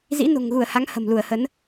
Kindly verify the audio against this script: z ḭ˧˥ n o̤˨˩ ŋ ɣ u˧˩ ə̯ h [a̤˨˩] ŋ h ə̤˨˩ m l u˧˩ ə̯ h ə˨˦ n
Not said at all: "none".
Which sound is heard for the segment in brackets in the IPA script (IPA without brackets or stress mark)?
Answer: a˨˦